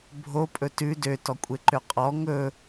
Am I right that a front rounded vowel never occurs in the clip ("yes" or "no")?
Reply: no